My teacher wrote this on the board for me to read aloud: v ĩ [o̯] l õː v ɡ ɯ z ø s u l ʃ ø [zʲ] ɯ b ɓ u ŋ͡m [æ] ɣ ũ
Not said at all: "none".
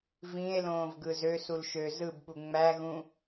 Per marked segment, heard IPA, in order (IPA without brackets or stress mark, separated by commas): e̯, z, æ